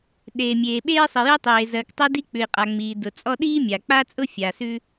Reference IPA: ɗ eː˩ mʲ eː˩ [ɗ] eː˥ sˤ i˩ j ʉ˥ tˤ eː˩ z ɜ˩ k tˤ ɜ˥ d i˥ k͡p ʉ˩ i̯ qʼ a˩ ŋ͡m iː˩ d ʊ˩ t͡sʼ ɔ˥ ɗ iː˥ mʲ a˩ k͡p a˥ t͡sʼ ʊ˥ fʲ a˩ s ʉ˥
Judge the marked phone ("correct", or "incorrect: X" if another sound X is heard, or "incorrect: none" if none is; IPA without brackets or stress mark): incorrect: ɓ